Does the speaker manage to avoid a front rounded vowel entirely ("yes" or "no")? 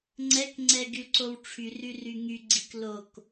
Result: no